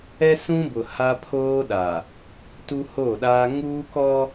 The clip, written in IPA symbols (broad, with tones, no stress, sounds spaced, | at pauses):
ɛ˦ s ũ˦ b ʊ˨ h a˦ pʰ oː˦ ɗ a˨ | t u˦ h o˦˨ ɗ aː˦ ŋ uː˦ k ɔ˦